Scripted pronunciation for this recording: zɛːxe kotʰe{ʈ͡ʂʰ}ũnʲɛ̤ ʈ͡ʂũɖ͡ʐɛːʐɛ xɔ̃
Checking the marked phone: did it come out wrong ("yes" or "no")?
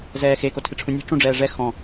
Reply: no